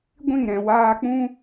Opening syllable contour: falling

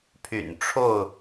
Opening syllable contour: low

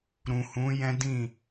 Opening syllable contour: low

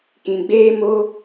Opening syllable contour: low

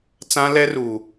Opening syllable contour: high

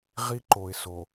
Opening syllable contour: high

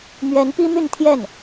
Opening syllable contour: rising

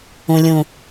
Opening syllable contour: low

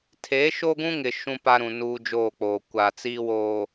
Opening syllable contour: rising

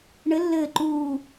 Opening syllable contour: rising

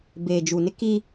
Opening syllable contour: low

